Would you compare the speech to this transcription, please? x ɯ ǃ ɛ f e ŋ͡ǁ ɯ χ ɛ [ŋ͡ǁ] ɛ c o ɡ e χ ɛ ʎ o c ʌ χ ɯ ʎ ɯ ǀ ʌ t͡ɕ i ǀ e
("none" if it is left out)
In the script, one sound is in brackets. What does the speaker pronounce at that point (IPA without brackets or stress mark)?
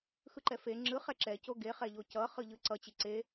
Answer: ǁ